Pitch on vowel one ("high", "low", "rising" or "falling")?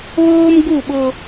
high